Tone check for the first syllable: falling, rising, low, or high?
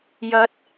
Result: rising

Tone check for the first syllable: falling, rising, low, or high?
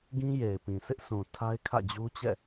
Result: high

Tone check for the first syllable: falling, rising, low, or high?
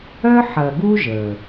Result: high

